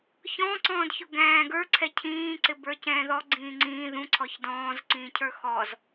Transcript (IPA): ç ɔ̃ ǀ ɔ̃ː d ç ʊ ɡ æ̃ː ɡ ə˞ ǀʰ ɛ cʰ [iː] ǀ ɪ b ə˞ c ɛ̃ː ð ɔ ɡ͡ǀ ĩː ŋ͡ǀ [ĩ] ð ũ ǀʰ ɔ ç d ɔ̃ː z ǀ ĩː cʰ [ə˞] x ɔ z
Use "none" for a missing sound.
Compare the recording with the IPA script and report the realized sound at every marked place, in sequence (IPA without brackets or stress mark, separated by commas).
ĩː, ĩː, ə˞